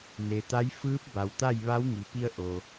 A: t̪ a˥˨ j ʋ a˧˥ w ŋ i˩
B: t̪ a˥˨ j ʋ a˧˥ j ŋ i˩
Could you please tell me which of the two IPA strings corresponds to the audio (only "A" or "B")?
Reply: A